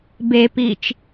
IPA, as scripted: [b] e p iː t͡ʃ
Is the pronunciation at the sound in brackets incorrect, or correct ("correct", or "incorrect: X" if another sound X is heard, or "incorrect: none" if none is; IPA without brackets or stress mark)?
correct